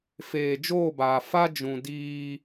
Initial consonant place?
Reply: labial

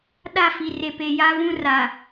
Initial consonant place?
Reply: alveolar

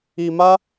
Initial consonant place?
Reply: labial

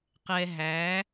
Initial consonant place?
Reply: uvular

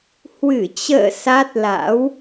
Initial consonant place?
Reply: glottal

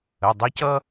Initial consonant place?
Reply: alveolar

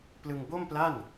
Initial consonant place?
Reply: labial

